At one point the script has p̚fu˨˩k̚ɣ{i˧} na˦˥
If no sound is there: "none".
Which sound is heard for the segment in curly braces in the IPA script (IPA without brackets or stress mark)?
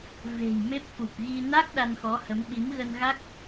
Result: i˧